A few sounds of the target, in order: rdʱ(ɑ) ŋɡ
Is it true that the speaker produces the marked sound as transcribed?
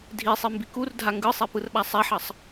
no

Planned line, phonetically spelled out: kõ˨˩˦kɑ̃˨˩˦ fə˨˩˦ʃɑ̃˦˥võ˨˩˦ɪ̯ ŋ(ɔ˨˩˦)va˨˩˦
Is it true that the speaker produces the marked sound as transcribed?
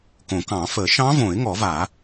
yes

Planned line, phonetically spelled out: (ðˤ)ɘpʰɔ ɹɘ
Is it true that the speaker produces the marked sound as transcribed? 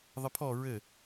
yes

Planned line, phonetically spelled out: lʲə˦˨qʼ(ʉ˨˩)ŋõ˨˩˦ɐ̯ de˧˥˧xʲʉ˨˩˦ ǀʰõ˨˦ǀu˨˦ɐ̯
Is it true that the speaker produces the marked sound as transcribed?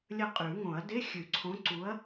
no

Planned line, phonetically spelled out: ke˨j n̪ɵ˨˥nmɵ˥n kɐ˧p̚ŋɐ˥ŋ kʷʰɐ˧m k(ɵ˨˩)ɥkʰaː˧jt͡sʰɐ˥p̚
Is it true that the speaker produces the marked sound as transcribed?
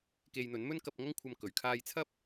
yes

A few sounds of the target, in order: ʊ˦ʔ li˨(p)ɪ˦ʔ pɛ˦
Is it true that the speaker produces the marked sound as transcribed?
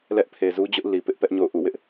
yes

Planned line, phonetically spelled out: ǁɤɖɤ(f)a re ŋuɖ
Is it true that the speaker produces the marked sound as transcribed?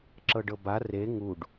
no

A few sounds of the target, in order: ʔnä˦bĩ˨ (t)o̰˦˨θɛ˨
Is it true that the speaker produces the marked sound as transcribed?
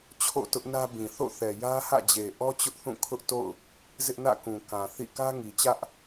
no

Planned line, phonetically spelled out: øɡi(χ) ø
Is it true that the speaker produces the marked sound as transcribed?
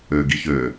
no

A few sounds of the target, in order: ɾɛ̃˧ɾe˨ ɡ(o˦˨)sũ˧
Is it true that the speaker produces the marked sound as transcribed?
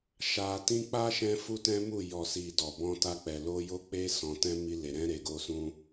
no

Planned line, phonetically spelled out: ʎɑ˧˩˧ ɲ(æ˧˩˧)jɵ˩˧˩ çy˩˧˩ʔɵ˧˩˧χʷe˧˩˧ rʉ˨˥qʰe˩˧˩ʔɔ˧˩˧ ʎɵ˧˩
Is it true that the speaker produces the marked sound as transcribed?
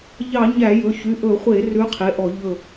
yes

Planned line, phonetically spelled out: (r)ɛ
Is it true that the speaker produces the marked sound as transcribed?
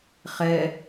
no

